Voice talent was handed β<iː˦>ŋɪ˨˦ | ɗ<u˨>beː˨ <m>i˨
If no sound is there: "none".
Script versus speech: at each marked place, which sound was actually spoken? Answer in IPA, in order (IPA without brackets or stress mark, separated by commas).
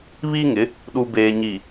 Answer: iː˦, u˨, ɲ